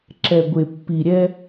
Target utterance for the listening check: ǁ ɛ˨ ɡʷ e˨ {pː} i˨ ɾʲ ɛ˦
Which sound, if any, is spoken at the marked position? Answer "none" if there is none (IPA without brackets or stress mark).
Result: pː